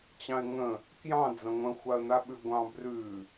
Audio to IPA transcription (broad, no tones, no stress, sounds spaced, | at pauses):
t͡ɕ ɑ̃ ɪ̯ ŋ ə̃ | k j ɑ̃ d͡z ɐ̃ ŋʷ ə̃ xʷ a ə̯ n̪ a ɓ ʉ ɡʷ ɑ̃ b r ʉ